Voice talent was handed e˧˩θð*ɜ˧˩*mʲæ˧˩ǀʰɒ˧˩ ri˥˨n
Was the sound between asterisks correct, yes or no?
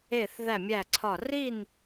no